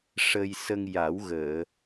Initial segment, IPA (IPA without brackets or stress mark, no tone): ʂ